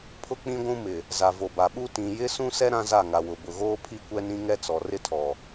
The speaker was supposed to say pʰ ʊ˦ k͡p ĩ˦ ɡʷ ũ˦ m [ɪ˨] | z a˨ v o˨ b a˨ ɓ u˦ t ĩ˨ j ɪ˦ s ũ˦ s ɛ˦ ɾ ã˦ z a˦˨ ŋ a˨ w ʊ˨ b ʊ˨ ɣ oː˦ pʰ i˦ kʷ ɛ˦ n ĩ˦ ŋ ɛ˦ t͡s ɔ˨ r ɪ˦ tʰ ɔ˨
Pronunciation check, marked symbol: correct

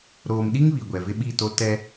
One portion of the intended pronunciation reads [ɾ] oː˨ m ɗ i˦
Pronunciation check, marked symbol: correct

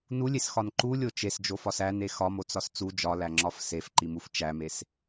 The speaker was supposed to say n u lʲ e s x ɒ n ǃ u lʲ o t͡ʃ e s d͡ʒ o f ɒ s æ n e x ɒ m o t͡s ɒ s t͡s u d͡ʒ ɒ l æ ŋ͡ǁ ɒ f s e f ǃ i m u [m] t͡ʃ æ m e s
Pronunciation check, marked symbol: incorrect: f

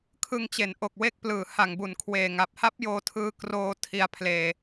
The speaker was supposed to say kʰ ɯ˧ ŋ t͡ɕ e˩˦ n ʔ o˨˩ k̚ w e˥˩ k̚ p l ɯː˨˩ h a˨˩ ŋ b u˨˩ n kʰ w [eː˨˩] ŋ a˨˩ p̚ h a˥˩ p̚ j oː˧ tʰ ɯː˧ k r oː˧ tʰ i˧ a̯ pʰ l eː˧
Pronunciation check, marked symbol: correct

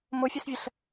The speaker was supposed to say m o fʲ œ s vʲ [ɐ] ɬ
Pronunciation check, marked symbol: correct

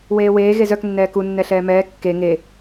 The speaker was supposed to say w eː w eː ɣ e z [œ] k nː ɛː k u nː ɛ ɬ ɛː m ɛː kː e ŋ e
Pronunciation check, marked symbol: correct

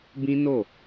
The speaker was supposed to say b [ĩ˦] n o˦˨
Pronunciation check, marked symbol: correct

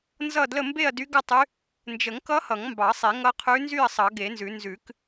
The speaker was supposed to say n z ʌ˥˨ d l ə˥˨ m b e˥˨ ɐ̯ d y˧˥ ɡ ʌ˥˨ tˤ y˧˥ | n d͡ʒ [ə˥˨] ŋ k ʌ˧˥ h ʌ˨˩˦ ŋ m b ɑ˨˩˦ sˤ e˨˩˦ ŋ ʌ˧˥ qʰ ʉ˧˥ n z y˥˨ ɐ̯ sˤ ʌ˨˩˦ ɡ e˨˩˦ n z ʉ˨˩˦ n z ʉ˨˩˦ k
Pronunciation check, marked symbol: incorrect: ə˨˩˦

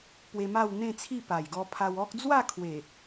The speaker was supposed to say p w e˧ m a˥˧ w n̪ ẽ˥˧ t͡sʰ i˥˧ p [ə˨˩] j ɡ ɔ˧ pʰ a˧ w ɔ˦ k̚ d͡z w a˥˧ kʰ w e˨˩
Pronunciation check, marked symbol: incorrect: a˨˩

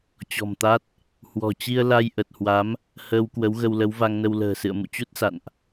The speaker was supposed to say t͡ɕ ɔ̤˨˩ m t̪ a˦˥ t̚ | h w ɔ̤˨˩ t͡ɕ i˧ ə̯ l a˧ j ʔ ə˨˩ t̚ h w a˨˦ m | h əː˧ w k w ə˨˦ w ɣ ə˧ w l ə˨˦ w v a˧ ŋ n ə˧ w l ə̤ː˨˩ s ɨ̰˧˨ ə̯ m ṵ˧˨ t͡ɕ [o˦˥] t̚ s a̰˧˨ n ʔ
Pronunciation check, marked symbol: incorrect: u˦˥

